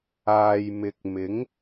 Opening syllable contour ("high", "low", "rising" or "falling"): low